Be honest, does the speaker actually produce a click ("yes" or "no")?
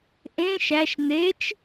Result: no